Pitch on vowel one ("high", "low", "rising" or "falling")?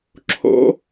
rising